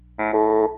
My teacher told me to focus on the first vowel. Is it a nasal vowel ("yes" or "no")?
no